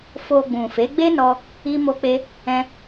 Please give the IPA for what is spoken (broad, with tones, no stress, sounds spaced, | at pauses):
f o˧ ɡ͡b ũ˨ f e˨˦ ɡ͡b e˦ n ɔ˧ | i˦ m o˦ k͡p e˦ | ɛ̃˦